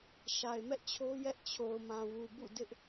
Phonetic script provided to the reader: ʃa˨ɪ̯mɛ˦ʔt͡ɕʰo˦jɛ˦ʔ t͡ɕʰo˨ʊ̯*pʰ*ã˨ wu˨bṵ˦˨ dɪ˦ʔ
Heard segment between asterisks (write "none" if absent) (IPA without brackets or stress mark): m